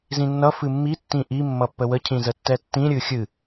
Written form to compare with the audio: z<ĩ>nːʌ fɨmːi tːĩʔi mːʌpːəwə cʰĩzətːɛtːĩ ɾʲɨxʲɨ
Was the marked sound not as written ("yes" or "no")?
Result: no